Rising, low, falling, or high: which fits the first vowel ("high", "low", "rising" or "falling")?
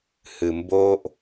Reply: low